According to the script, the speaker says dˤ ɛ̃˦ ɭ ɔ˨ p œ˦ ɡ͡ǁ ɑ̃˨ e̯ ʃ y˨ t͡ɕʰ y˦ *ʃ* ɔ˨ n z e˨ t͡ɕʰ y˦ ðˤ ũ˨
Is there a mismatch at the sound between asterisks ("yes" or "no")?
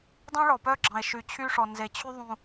yes